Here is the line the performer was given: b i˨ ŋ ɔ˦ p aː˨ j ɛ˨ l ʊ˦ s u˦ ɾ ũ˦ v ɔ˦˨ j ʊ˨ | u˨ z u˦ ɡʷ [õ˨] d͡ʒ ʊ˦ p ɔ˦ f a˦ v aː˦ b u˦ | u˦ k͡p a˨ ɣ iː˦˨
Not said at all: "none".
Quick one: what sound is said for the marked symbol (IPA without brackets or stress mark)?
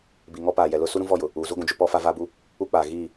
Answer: ũ˨